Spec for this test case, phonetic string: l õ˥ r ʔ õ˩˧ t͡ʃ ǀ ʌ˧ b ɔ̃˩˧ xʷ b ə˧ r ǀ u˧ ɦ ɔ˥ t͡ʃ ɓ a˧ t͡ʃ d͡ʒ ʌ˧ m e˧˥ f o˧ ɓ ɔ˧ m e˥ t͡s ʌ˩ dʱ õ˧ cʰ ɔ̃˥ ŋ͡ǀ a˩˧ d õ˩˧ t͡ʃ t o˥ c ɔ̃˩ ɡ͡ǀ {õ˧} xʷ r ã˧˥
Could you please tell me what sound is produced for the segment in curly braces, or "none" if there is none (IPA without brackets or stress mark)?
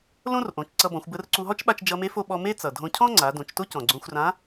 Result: õ˧